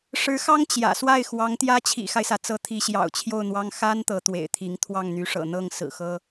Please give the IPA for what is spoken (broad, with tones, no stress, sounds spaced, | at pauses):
ʂ ɻ̩˧˥ x ɑ˥ ŋ t͡ɕ j ä̰˨˩ s w a˥˩ ɪ̯ x w ɑ˧˥ ŋ t̪ j ä˥ t͡ɕʰ ḭ˨˩ x a˦ ɪ̯ s ä˩ t͡s ɤ˧˥ t̪ʰ i˧˥ ɕ j ɑ̰˨˩ ʊ̯ t͡ɕʰ j o˥˩ ʊ̯ n̪ w ɑ˥ ŋ x a˥ n t̪ ɤ˧˥ t̪ w ḛ˨˩ ɪ̯ t̪ʰ i˧˥ ŋ t̪ʰ w ɑ˥˩ ŋ n̪ y˧˥ ʂ ɤ̰˨˩ n̪ ɤ˥˩ ŋ s ɹ̩˨˩ x ɤ˥